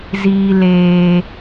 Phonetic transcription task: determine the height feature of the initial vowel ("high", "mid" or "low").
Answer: high